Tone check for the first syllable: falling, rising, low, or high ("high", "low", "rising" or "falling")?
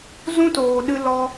high